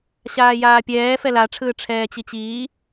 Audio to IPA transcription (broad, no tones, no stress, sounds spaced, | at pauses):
ɕ aː j aː pʲ ɛː f ɛ l a ʈ͡ʂʰ ɯː ʈ͡ʂʰ ɛː t͡ɕ i t͡ɕ iː